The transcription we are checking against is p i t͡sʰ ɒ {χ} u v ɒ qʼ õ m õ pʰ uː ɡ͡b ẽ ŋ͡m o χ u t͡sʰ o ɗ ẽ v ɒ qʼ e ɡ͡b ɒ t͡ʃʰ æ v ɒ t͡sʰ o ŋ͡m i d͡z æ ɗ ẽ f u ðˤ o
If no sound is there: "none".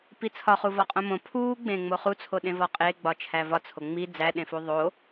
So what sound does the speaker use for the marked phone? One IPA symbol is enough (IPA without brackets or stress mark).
χ